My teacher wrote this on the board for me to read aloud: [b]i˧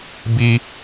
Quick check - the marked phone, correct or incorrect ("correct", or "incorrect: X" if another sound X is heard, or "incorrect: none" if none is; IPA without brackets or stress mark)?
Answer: correct